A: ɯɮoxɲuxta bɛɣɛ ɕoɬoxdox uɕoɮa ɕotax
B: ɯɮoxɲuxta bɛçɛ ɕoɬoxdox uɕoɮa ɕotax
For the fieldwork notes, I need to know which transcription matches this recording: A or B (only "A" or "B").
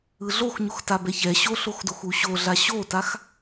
B